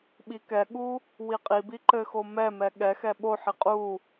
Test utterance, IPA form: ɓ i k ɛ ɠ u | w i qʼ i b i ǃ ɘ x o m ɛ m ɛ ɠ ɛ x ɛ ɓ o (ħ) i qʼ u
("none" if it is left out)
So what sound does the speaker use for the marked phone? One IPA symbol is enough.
ħ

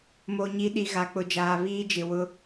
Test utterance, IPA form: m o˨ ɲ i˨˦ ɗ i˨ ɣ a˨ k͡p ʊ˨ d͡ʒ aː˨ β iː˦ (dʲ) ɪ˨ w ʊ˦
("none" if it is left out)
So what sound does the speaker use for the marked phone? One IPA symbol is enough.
d͡ʒ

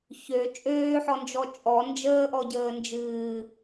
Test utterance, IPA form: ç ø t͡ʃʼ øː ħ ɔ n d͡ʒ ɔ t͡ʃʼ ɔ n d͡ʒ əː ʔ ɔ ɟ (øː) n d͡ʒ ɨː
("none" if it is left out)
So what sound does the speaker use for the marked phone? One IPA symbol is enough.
əː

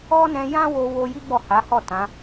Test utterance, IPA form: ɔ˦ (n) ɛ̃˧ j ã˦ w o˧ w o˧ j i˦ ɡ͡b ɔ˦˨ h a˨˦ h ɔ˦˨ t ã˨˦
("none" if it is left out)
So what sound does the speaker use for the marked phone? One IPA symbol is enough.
n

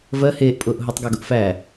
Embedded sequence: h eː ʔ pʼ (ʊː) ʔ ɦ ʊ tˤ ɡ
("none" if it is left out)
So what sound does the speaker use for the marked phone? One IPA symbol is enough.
ʊː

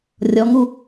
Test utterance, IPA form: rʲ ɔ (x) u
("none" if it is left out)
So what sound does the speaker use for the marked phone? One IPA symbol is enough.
ŋ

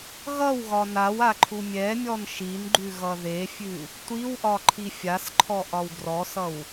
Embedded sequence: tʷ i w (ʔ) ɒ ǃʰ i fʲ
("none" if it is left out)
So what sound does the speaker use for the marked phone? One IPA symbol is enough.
ʔ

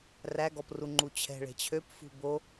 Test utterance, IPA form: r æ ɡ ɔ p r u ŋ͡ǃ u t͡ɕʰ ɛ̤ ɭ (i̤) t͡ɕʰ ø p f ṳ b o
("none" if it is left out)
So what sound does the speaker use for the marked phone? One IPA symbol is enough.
e̤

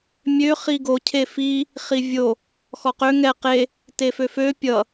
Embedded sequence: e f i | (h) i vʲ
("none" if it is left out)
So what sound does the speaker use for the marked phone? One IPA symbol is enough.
χ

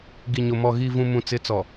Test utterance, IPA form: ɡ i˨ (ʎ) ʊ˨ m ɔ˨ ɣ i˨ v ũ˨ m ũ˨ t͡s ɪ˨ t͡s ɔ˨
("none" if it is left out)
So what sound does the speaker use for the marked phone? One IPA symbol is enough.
ɲ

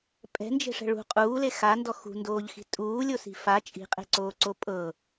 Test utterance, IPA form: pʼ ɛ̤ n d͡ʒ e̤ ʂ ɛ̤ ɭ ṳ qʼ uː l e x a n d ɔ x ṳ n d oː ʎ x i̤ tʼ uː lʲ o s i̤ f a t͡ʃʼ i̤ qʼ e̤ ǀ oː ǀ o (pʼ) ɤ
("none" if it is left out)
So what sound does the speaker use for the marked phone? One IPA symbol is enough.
pʼ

